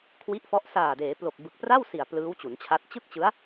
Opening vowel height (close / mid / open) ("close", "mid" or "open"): close